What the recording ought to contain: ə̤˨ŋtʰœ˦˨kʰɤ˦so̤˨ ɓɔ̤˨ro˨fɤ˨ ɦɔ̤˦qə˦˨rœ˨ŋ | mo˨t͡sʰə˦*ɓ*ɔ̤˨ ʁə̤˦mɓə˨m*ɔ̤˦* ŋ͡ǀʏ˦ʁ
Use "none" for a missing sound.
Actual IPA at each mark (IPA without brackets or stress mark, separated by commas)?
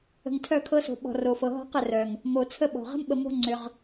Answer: ɓ, o̤˦